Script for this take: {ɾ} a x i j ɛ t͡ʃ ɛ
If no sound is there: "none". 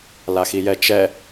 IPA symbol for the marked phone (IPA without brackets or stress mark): l